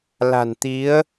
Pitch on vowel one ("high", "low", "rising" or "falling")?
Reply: low